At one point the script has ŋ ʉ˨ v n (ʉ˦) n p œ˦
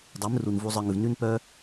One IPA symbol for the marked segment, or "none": ʉ˦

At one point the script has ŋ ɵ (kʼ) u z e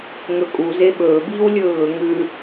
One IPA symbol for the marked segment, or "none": kʼ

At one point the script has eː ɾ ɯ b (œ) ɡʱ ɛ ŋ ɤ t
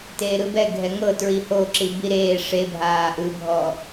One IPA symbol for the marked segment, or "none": ɛ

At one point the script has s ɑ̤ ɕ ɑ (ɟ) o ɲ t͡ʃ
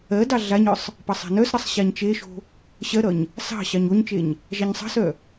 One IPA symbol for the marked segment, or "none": ɲ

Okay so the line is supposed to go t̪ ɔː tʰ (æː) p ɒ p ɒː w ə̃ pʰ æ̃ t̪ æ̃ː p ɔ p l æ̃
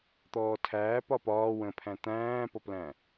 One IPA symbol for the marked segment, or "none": æː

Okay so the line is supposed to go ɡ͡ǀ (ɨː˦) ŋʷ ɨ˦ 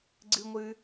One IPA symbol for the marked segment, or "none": ɨ˦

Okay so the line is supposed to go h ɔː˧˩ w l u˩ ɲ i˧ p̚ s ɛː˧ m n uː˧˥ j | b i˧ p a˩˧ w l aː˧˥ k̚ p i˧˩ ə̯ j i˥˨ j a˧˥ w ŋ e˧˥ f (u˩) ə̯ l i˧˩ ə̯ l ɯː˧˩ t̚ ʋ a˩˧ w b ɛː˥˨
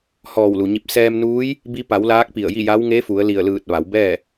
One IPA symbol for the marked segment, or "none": u˩˧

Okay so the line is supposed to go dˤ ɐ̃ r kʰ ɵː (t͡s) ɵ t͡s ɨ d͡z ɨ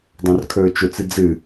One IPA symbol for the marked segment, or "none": t͡ʃ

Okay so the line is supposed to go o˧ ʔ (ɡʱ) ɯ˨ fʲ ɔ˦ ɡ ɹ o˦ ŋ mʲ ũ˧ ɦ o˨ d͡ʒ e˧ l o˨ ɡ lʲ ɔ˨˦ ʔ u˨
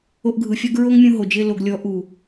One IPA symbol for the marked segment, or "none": ɡʱ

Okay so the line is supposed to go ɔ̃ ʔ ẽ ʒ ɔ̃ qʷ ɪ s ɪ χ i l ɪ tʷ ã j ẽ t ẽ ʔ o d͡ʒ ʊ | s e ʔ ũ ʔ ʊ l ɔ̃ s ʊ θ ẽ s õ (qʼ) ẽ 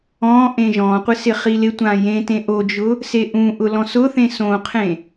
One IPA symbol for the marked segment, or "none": qʰ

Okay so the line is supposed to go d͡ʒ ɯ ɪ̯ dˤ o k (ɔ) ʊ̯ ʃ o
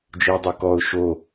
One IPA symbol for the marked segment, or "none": ɔ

